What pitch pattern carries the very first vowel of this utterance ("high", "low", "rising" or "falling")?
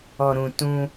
low